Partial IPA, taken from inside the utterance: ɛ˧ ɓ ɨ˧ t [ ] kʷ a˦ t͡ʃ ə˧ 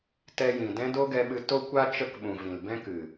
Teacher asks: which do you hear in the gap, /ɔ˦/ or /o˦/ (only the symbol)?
o˦